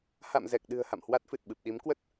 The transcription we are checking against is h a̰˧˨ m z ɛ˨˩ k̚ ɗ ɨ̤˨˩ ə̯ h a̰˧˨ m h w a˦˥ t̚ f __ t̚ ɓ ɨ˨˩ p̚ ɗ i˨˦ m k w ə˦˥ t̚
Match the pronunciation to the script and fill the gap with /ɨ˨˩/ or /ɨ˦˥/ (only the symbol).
ɨ˨˩